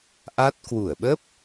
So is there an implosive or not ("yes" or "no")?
yes